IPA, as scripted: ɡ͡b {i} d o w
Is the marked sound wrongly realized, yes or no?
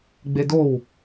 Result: yes